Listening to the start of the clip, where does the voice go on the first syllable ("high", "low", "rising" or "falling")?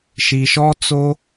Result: low